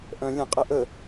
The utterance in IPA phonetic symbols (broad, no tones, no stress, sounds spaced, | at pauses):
ʔ œ̃ lʲ ə̃ qʼ ɛ ʔ ə